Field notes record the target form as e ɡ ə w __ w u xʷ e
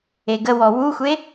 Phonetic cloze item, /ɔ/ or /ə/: ɔ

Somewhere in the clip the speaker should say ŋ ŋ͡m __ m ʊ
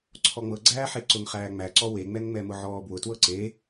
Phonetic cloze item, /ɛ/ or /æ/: ɛ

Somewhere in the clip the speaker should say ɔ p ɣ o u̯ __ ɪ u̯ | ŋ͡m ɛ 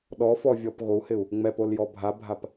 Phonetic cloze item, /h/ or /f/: h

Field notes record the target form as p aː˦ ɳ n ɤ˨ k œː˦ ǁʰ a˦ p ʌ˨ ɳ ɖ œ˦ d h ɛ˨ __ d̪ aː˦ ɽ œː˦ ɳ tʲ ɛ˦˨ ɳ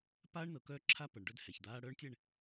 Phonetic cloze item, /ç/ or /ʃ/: ç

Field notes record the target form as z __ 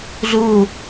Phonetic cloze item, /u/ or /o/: u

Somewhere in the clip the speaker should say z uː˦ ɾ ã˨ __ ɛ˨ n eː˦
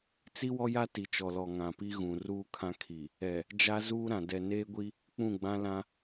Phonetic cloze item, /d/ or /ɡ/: d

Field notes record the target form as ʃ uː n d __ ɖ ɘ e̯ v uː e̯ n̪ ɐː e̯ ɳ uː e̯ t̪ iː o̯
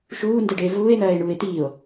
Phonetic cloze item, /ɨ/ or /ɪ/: ɨ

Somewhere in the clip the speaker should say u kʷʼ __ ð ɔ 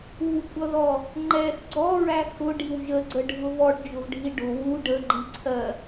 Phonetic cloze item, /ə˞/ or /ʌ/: ʌ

